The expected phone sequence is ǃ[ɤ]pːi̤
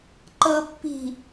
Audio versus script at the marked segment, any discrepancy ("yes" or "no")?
no